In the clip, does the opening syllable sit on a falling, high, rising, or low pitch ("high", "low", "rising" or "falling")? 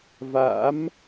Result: rising